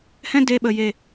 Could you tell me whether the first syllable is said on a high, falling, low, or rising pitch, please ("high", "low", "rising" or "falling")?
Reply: high